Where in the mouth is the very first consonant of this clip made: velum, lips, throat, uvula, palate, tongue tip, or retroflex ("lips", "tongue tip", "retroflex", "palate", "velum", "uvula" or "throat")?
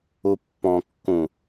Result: lips